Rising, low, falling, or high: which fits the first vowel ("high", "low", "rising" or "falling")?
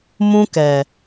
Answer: high